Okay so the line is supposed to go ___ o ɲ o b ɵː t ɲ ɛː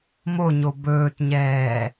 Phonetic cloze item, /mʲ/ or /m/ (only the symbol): m